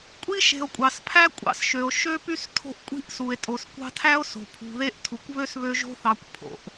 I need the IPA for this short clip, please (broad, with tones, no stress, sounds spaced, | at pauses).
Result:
kʷʼ i˥ ʃ e̤˨ o̯ kʷʼ ɑ˩ s pʰ æ˥ kʷʼ ɑ̰˦ s ʃ ø˩ o̯ ʃ ø˥ p y˥ s tʰ o̤˦ ʔ kʷʼ i̤˥ ʔ s u˩ e̯ tʼ o˩ s kʷ ɑ̤˦ tʰ æ˥ o̯ s o̤˩ pʰ ṳ˨ ð e˥ ʔ tʰ u˩ kʷ β ø˥ s β ø˦ ʒ o̤˦ θ ɑ˨ kʷ pʰ o̰˩ ʔ